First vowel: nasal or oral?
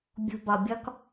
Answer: oral